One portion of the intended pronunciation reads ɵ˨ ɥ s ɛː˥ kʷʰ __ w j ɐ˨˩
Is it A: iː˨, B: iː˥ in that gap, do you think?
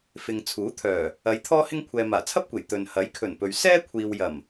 A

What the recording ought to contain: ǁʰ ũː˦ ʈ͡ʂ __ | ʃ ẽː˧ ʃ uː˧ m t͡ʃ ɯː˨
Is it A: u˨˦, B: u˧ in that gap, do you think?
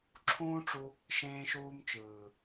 B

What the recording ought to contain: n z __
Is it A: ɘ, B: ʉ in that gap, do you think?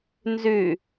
B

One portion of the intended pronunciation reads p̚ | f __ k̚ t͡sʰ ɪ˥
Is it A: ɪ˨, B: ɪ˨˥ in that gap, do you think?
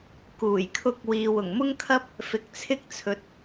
A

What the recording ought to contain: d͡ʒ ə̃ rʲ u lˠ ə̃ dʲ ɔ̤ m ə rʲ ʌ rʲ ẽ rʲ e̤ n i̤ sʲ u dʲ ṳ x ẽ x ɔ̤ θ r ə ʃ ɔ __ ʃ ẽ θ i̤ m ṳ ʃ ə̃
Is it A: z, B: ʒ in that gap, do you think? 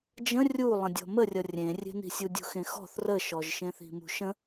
B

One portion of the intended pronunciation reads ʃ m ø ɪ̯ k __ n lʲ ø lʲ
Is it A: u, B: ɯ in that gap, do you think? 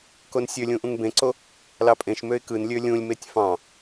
B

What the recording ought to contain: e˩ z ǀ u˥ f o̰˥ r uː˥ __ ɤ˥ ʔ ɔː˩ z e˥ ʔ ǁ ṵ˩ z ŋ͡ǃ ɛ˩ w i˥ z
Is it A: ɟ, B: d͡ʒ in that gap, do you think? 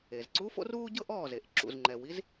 A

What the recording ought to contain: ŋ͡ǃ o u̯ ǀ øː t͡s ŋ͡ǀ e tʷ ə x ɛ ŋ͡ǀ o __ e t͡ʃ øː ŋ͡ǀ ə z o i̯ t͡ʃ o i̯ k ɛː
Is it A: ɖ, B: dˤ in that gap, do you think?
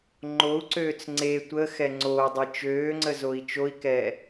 B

